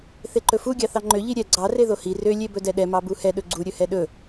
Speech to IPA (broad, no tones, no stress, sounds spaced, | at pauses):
θ e ǃ ɵ f u ɡʲ ɑ θ ɑ ŋ͡ǃ ø ʎ i ɾʲ ɛ ɡ͡ǀ ɑ r e ð o h i r ø lʲ e b ɵ d ɛ ɗ ɛ m ɑ b u h ɛ ɗ ɵ ɡ͡ǀ u ɾʲ ɵ h ɛ ɗ ɵ